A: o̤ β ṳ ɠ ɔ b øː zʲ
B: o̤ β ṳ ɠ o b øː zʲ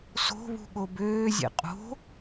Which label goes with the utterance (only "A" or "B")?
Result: B